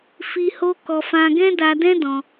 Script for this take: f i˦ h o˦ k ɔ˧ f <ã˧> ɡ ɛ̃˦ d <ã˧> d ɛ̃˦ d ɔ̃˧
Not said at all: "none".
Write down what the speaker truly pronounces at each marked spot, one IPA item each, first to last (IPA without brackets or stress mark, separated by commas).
ã˧, a˧